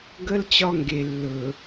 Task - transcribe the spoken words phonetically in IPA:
ɡ ə˦ l t͡ɕ ɒ˦ ŋ ɡ e˨ lː ɵ˨

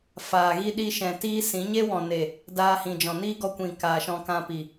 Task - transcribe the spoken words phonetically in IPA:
f aː˨ ɣ i˦ ɗ i˦ ʃ ɛ̃˨ t iː˦ s ĩ˨˦ ɲ e˦ w ɔ̃˨ n e˨ | d aː˧ h ĩ˨ d͡ʒ ɔ̃˨ n iː˦ ɡ ɔ˧ kʷ ĩ˨ k aː˨ ʃ ɔ̃˧ k ã˧ p i˨

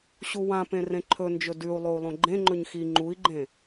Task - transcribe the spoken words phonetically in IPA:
ɕ u w ã p ẽ r ẽ ǃʰ ɵ n d͡ʒ ɵ d ʉ u̯ lˠ o u̯ lˠ õ ɡ͡ǃ ẽ ŋ͡ǃ ɵ ɲ x i ŋ͡ǃ u i̯ ɡ͡ǃ ẽ

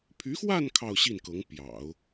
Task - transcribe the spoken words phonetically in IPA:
pʰ y˧˥ x w a˥˧ n kʰ ɑ˥˧ ʊ̯ ɕ i˥˩ n k ɤ˧˥ ŋ p j ɑ̰˨˩˦ ʊ̯

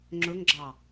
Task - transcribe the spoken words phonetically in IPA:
ŋ͡ǁ ɵ ŋ ɡ͡ǁ ɑ

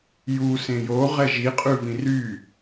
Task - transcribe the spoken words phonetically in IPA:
j u s ẽ j o ʁ ɛ ʒ i qʼ ʉ v ĩ r y

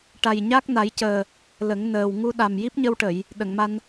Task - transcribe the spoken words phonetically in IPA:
ʈ a˨˩ j ɲ a˦˥ k̚ n a˨˩˦ j c əː˨˩ | l ə˨˩˦ ŋ n əː˨˩ w ŋ u˧ ɗ a˨˩ m j i˦˥ p̚ ɲ ə˧ w ʈ ə˨˩˨ j | ɗ ə˨˩˨ ŋ m a˧ n

